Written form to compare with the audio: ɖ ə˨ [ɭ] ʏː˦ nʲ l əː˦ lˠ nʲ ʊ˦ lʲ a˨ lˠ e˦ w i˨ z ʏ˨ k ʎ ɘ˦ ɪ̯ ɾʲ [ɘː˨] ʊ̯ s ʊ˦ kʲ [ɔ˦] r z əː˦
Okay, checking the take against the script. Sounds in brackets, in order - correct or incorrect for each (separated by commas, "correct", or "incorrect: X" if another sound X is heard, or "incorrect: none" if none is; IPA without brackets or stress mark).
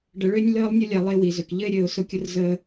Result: correct, correct, incorrect: ʊ˦